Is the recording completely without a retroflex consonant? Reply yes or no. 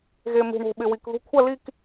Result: no